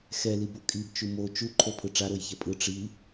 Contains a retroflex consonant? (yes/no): yes